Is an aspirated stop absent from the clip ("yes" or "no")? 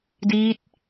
yes